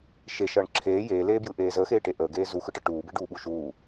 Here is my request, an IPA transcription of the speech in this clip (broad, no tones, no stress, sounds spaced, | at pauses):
ʃ e ʃ ʌː ɳ ǁʰ eː j eː l eː b j ɯ ʔ eː z əː x eː ʈ e ʔ əː ɡ eː z u x ɯ ʈ ʌ ʈ uː b e ɖ uː ɓ u ʃ uː